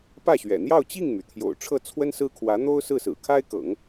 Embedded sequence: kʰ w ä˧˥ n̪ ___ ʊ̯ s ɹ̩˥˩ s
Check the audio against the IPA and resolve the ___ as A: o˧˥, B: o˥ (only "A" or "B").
B